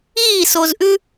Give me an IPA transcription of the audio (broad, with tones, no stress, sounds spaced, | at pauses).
iː˦˨ s o˨ z ʔ ʉ˦